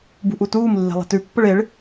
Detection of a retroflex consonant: present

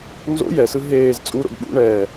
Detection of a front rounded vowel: absent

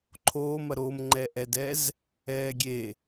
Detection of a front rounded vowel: absent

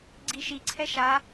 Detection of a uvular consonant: absent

